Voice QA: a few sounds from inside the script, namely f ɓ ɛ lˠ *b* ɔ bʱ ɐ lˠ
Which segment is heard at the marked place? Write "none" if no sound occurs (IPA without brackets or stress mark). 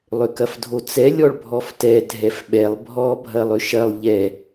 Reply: bʱ